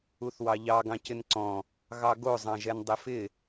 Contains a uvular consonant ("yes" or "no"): no